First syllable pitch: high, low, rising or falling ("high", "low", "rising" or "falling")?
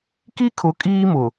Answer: high